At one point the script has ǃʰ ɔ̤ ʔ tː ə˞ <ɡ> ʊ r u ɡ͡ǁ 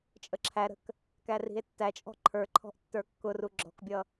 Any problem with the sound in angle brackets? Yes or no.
yes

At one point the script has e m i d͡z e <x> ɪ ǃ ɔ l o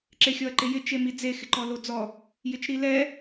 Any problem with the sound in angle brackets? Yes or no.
no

